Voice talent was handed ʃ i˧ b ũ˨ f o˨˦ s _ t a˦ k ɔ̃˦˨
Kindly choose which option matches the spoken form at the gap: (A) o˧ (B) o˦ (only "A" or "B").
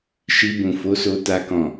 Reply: A